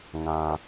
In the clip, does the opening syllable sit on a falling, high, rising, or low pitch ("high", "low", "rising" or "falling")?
low